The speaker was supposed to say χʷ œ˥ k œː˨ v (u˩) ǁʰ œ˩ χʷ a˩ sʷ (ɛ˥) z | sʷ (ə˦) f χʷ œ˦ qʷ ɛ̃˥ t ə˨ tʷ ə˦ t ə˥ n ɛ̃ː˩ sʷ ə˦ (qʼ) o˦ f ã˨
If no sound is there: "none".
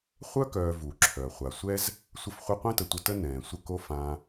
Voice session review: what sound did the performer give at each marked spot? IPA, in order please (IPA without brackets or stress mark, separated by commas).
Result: u˩, ɛ˥, ə˦, k